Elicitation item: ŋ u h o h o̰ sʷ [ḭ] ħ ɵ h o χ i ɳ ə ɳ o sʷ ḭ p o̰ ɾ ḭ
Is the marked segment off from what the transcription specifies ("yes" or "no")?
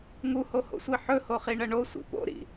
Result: yes